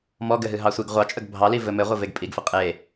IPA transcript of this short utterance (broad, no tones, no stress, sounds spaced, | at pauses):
m ɔ ɡ ɘ ɦ ɨ ɦ ɑ sʷ i ɡ ʁʷ ɑ t͡ʃʼ ə ɡ bʱ ɑ l i v ɘ m ɘ ʁʷ ɘ v e ɡ pʼ i ɡ f ɘ qʼ e